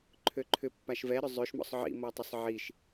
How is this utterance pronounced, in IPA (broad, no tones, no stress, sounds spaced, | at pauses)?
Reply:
ǃʰ ø ǃʰ ʏ pː a ʃ v ɛ ɾ ʏ zˤ ø ʃ m ɔ̰ sˤ ʕ ḭ m ɔ tˤ ɪ sˤ ʕ i ʃ